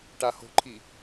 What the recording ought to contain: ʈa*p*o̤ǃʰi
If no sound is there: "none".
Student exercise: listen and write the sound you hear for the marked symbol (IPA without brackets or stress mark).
h